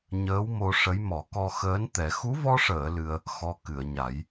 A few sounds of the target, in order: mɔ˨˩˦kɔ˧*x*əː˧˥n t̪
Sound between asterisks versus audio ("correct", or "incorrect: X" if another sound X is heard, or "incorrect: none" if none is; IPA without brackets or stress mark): correct